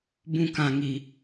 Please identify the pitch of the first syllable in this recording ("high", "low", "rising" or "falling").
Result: high